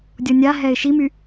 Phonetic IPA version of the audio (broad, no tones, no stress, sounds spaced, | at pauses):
dʲ ɔ nʲ a ɦ ɛ ɪ̯ ʃ i m y